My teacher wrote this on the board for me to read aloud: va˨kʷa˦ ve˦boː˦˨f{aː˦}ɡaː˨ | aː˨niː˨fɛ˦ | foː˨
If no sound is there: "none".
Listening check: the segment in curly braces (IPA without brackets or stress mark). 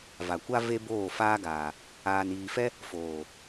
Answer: aː˦